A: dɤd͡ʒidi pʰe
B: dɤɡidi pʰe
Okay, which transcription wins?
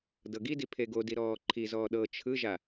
B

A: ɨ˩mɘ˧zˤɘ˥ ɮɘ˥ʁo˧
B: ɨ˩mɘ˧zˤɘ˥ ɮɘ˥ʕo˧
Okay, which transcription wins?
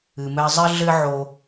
B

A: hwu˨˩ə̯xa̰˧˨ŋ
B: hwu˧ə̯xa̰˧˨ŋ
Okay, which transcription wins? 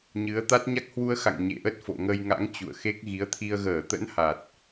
B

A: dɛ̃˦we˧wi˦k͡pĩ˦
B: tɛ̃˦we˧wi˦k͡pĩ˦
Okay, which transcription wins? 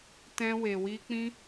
B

